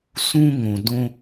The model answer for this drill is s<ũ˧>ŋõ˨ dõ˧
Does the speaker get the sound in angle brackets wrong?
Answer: no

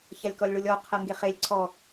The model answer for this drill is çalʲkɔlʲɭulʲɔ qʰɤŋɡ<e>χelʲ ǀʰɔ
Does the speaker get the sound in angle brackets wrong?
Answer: no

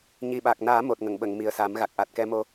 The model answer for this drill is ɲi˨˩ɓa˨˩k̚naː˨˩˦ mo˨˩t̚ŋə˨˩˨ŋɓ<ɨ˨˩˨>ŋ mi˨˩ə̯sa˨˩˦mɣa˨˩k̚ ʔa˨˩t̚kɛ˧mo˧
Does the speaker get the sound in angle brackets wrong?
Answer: yes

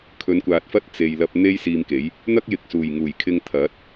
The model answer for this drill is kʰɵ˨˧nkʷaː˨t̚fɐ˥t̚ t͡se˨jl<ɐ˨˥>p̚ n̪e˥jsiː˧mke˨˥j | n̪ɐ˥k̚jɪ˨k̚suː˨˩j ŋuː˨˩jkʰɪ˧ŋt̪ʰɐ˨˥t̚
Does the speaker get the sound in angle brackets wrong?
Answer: yes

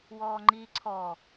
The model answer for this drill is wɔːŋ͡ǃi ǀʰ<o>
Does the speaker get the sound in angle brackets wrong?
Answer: yes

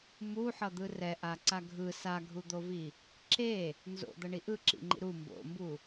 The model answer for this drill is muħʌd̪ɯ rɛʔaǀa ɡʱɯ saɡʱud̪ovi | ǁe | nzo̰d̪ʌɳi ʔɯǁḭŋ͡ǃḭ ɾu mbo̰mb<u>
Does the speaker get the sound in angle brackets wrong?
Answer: no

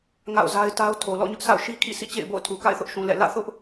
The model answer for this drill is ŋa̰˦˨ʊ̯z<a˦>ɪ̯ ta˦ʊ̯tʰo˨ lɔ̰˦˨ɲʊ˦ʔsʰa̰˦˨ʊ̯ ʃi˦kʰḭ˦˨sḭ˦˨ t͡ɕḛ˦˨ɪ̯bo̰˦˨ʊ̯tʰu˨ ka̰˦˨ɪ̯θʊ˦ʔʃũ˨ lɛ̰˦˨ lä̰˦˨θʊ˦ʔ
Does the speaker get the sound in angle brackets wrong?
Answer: no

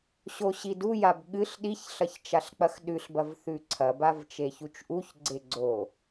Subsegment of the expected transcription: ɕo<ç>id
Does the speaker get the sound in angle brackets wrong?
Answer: yes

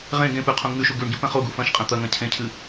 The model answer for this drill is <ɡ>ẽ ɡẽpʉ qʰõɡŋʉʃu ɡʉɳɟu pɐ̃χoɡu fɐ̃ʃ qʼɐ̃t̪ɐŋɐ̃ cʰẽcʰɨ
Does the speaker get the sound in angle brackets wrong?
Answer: yes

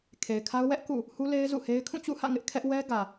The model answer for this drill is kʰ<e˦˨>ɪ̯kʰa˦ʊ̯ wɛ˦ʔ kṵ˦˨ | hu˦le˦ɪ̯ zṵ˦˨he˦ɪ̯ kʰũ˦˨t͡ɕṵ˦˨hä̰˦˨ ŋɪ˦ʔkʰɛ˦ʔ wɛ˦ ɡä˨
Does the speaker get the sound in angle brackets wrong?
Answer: yes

